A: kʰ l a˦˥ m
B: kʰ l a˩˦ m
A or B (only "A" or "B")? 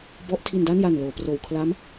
A